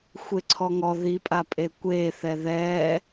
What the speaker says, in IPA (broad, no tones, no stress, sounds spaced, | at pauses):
xʷ e ǀʰ ɔ ŋ ɔ ð i pʼ a pʼ e kʷ e θ ɛ ð ɛ